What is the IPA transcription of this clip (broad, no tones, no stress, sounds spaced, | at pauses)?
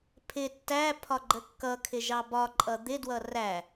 pʰ ɪ tː æ pʰ ɒ ɡ͡ǃ ə kː ʌ kʰ ɪ ʒ ɑ b ɒ ǃʼ ʌ d̪ ɪ d w ʌ r æ